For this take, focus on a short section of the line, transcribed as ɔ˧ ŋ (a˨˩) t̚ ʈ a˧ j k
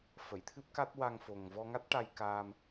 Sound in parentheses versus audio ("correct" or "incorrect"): incorrect